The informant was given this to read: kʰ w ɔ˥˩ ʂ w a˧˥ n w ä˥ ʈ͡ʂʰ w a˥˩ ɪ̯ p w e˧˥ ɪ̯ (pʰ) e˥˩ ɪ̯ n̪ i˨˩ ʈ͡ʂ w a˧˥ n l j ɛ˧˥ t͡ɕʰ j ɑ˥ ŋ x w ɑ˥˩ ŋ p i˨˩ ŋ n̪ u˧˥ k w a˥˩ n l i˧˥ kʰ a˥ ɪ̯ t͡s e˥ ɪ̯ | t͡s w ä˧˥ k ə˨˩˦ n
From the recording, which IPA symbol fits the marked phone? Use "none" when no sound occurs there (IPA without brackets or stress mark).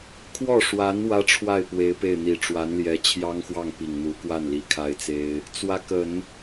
p